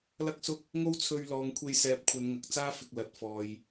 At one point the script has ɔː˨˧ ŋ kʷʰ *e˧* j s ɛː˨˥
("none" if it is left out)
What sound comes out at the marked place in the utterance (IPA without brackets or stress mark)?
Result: e˧